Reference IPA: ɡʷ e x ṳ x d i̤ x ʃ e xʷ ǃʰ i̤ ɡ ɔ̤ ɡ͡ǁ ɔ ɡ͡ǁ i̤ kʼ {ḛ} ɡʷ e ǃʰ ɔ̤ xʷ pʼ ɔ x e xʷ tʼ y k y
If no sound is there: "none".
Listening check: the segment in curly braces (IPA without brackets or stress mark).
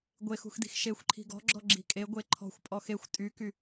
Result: e